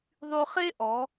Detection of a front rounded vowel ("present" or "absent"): present